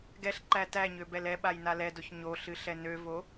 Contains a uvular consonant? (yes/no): no